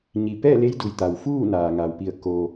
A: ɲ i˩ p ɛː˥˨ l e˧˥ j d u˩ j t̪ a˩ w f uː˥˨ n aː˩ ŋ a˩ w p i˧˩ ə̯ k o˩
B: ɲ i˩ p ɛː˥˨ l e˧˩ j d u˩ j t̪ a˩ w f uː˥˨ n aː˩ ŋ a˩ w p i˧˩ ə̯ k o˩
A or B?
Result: A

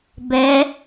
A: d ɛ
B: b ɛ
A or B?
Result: B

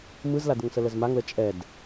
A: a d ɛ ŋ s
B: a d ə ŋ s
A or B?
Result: B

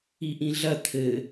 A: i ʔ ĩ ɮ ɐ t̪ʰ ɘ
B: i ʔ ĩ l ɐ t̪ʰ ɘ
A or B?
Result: A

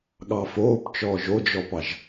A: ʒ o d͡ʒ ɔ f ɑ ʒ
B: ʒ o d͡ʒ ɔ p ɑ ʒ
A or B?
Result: B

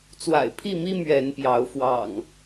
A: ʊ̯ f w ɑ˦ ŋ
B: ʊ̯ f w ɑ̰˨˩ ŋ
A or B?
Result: B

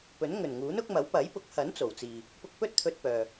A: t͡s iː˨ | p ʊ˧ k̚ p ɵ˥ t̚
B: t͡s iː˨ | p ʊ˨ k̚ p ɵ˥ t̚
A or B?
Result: A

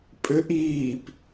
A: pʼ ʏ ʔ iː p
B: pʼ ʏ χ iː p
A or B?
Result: A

